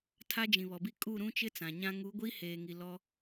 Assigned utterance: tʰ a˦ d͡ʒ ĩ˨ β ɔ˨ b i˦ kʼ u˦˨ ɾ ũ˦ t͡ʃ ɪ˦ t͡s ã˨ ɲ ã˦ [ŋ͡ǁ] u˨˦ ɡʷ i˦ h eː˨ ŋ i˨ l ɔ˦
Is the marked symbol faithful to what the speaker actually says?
no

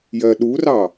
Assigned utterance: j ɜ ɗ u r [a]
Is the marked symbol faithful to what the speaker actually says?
no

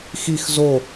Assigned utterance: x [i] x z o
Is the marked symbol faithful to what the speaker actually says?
yes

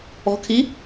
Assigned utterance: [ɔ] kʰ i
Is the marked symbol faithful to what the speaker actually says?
no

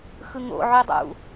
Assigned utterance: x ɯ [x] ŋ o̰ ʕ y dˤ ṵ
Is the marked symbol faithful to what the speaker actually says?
no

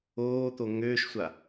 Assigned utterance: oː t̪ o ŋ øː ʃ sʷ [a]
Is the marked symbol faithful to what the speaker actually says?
yes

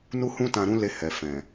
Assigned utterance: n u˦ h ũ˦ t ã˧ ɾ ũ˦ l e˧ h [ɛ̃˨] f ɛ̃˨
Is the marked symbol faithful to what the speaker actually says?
no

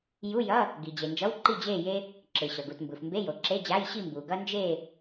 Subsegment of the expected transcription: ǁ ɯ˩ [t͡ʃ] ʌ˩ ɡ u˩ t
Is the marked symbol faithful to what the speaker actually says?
no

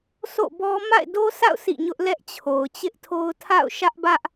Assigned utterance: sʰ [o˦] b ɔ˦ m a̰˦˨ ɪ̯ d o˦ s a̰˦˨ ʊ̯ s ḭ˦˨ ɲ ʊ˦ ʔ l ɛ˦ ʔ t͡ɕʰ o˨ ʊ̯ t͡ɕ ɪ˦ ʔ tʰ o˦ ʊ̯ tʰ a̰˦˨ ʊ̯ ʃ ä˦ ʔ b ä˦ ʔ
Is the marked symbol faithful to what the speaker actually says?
no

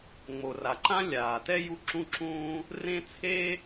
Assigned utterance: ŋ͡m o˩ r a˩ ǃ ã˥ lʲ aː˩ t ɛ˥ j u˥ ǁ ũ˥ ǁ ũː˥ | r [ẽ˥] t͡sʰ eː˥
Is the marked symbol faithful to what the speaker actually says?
yes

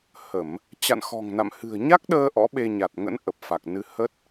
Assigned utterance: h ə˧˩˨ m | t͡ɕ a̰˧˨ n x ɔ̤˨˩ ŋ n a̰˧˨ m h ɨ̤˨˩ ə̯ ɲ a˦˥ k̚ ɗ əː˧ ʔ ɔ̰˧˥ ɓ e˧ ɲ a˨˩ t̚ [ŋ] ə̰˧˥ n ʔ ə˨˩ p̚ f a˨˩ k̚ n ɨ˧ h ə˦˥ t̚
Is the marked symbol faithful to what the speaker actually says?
yes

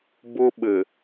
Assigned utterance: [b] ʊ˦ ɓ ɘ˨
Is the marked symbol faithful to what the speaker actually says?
yes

